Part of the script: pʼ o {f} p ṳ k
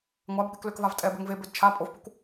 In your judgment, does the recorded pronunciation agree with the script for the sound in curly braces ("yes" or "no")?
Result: yes